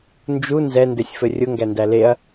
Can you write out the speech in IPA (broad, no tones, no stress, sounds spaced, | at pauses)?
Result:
n d͡ʒ u n z ɛ n d ɘ sʲ f ɘ rʲ ʊ ŋ ɡ æ n d æ l e ɐ̯